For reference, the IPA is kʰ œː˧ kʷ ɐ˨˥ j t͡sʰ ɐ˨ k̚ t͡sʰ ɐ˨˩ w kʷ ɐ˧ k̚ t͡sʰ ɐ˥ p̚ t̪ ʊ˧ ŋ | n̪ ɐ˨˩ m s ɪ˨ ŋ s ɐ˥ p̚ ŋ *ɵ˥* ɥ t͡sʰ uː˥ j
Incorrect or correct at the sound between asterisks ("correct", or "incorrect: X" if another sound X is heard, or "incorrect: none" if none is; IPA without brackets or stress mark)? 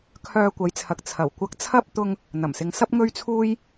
correct